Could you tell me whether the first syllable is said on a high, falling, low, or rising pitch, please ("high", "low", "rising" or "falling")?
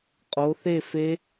rising